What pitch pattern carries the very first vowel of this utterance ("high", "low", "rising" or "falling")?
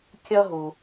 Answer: high